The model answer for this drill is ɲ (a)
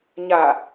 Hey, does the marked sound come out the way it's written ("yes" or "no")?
yes